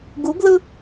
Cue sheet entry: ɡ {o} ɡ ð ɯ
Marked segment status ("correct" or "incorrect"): incorrect